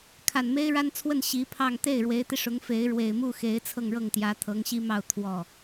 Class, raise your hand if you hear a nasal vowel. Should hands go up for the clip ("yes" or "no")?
no